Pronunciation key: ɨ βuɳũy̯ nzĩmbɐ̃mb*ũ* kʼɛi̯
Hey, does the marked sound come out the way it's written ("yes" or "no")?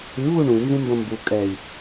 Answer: no